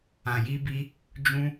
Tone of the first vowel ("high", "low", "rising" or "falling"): low